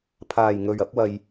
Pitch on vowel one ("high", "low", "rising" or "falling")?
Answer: low